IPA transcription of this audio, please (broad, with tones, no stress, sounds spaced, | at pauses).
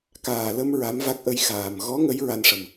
k aː˨˩ l ə˧ m ɹ a˧˥ m v a˦˥ k̚ ʔ ə˧ j x aː˨˩ m ɣ ɔ˧˥ ŋ ə˧˥ j ɹ a˧ n ʂ ə˨˩ m